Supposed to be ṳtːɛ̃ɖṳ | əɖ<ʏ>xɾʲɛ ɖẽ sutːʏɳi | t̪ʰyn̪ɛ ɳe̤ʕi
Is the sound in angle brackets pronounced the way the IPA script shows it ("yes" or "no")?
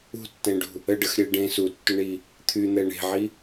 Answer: no